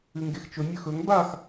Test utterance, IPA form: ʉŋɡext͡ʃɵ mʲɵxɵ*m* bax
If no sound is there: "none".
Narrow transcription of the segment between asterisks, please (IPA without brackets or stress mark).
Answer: ŋ